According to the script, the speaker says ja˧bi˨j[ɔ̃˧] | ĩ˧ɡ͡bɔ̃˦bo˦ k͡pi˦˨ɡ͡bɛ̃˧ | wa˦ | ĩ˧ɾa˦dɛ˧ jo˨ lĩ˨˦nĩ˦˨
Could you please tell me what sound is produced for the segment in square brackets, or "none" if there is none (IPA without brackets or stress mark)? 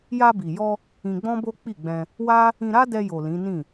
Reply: ɔ˧